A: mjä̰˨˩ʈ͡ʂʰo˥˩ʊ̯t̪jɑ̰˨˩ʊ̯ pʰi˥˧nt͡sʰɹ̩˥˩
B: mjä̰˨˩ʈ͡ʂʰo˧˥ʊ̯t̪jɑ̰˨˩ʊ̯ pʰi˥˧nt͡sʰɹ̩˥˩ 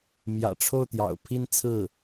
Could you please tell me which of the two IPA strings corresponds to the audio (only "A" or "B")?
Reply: A